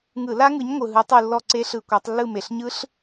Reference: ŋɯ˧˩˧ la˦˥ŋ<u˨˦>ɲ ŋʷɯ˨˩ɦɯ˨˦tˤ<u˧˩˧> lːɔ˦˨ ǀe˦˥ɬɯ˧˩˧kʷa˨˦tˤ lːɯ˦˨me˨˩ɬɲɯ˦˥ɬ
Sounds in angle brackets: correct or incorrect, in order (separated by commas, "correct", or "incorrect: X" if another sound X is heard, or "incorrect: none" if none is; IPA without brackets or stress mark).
incorrect: ɯ˨˦, incorrect: u˦˨